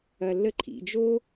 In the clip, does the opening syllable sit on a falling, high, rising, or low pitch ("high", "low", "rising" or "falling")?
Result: low